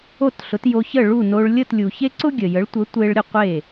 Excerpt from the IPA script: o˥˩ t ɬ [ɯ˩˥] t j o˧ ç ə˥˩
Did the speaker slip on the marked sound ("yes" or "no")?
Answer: yes